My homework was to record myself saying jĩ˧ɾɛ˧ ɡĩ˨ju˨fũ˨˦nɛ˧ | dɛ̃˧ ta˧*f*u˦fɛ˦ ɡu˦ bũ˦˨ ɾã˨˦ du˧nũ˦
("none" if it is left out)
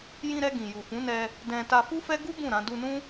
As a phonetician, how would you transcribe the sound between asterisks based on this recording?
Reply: f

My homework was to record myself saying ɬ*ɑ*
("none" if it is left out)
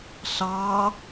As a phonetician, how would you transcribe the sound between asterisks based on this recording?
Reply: ɑ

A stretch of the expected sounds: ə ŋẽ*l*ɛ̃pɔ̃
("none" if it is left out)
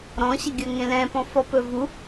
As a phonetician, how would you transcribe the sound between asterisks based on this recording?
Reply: l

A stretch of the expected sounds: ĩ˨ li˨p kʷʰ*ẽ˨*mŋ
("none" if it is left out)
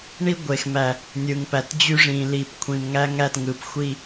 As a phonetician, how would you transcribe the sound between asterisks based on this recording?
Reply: ĩ˨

